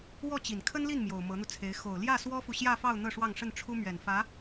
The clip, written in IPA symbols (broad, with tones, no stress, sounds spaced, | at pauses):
w ɔ˥˩ t͡ɕ i˨˩ n kʰ ə˥ n l i˥˩ n m j o˨˩ ʊ̯ m ɤ˧˥ n̪ u˧ t͡sʰ e˧˥ ɪ̯ x o˨˩ ʊ̯ l j ä˥˩ s w ɔ˥ f u˨ ɕ j ä˥˧ f ɑ˥˧ ʊ̯ n̪ ɤ˥˧ ʂ w ɑ˥˧ ŋ ʂ ə˥˩ n ʈ͡ʂʰ u˥ m ɥ ɛ˨˩ n f ä˧˥